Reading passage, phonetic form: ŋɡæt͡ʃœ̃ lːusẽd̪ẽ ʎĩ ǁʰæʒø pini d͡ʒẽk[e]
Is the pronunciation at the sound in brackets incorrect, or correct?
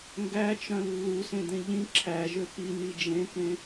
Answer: incorrect